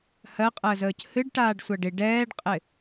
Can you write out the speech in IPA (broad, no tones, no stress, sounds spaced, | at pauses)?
h ɜ qʼ əː z əː c h ɨ ɖ ʈ aː ɖ sʷ a ɖ ɪ ɖ ɛː ɖ qʼ ɪ